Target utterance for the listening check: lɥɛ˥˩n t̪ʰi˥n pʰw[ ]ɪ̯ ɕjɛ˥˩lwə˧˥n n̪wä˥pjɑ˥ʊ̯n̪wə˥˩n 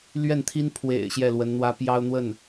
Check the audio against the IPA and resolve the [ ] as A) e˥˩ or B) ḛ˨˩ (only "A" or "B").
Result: B